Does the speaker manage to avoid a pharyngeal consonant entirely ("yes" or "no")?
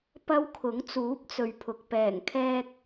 yes